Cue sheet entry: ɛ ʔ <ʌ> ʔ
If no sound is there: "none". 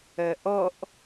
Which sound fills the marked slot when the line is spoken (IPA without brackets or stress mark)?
ʌ